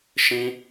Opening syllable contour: high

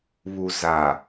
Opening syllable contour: low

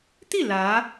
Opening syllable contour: falling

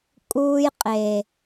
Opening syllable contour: high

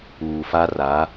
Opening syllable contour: low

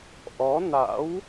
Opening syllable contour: rising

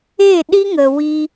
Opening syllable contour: falling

